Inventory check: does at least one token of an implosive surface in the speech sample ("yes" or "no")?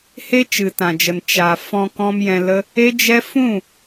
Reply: no